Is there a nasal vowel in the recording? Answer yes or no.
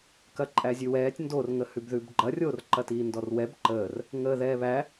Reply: no